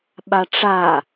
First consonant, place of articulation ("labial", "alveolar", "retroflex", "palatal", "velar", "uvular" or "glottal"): labial